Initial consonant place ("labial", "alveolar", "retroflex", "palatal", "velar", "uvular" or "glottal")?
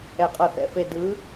uvular